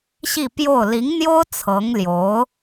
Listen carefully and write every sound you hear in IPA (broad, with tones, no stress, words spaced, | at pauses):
ɕi˥˧pjo˥˩ʊ̯ li˧˥ŋn̪jo˥ʊ̯ t͡sʰɤ˧˥ŋljo˧˥ʊ̯